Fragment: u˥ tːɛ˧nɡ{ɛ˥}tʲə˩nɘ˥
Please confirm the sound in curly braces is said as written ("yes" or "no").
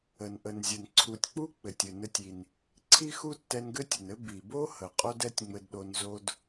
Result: no